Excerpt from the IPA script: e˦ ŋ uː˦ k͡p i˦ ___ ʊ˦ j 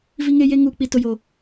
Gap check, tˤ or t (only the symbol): t